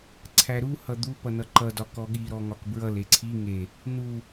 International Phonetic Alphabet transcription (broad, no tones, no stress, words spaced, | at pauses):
ǀʰæɾuhʌ d̪upʌ nʌǃʌdɒ kɔɠiɾɔ ŋɒkbɹʌle ǀʰi ŋe | nu